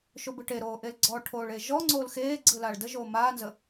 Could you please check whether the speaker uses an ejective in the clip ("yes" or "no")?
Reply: no